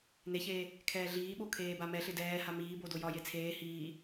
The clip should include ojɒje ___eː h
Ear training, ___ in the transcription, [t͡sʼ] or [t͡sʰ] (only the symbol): t͡sʰ